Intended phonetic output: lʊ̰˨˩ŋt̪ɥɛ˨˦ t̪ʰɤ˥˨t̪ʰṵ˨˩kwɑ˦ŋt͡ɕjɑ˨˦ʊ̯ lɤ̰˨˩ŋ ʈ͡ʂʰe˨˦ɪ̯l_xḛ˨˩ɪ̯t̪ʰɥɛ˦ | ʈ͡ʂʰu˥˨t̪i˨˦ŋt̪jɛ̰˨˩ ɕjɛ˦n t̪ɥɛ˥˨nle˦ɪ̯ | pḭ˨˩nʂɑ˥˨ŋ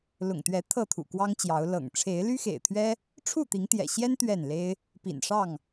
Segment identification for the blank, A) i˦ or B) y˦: B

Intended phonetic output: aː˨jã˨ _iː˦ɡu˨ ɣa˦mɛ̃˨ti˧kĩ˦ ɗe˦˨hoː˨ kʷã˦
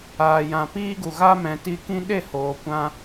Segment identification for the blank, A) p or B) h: A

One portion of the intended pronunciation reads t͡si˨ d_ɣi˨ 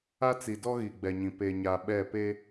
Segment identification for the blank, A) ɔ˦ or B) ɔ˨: A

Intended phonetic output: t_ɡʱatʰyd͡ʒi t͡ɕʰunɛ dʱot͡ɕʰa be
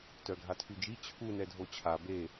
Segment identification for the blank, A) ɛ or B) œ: B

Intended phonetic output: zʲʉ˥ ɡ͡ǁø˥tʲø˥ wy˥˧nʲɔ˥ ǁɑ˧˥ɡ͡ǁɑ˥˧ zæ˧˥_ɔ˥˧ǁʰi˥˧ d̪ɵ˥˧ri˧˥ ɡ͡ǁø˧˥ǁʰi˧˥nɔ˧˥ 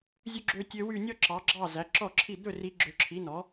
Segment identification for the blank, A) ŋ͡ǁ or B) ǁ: B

